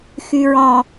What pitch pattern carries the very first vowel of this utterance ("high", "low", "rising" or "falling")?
low